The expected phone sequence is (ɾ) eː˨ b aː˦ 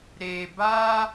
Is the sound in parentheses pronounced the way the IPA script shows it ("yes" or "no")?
yes